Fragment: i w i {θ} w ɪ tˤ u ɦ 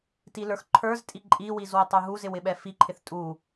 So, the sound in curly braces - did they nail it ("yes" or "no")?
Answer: no